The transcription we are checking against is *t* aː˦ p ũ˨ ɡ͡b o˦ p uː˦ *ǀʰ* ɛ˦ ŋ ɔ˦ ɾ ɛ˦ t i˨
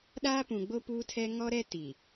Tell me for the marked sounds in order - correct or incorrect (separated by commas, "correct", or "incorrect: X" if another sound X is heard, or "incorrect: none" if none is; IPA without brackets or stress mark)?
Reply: incorrect: ɗ, incorrect: tʰ